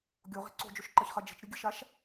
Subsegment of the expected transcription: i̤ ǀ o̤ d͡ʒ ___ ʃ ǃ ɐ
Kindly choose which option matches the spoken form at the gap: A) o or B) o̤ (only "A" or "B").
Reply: A